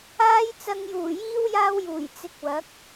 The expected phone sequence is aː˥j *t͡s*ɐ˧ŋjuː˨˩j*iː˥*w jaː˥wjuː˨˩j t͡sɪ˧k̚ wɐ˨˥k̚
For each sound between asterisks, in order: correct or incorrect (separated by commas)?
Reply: correct, correct